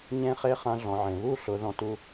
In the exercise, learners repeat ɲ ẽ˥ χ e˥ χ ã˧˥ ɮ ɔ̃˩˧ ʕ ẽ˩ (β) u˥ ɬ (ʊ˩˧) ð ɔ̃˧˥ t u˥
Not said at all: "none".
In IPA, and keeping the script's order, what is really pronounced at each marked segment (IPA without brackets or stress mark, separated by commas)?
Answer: β, ʊ˩˧